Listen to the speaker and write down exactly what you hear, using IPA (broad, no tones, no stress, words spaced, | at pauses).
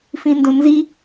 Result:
fĩndõnzi